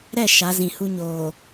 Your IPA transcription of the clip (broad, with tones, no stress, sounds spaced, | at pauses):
ɾ ɛ˦˨ ʃ a˨˦ z ĩ˨ h u˦ ɲ oː˨